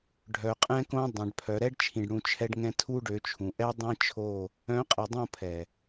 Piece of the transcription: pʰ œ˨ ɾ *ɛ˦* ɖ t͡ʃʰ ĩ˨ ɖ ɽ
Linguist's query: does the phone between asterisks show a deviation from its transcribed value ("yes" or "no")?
no